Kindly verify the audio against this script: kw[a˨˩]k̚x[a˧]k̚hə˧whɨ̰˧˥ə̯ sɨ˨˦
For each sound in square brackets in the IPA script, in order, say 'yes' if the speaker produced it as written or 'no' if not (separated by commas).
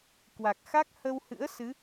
yes, no